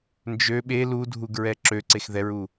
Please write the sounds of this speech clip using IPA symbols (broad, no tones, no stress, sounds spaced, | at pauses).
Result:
n d͡ʒ ø ɓ e l u dʱ u ɡ ɹ ɛ ǁ ø ǀ e x ð ɛ ɹ u